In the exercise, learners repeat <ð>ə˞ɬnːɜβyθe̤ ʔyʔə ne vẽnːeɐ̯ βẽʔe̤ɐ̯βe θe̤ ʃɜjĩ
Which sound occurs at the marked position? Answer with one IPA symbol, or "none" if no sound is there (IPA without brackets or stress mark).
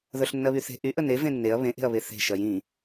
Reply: ð